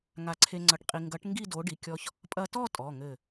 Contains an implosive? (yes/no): no